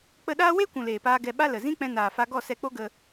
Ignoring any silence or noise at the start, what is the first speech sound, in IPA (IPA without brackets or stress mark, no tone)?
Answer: k͡p